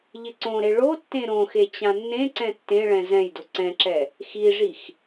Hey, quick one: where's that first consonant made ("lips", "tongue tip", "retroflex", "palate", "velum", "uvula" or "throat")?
palate